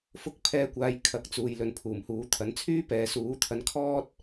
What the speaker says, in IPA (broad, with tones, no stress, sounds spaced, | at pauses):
f ʊ˧ k̚ pʰ ɛː˨˧ kʷ aː˨ j kʰ ɐ˨˥ k̚ t͡s uː˨ j l ɵ˨ n pʰ uː˨˩ m h uː˨˥ t̪ʰ ɐ˨˥ n t͡sʰ yː˥ p ɛː˨˧ s uː˨˥ t̪ʰ ɐ˧ n kʰ ɔː˥ t̚